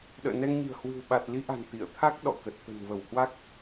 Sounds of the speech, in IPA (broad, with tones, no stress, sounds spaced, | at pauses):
ɗ ə̰ː˧˨ n ɛ˧ ŋ ɲ i̤˨˩ ə̯ h w ɨ̤˨˩ w ɓ a˨˩ t̚ l i˨˦ ʔ a̤˨˩ n t̪ ḭ˧˨ ə̯ t̪ʰ a˦˥ k̚ ɗ ɔ̰˧˨ k ə˨˩ t̚ t̪ ə̤˨˩ n v ə˧˩ w h w a˦˥ k̚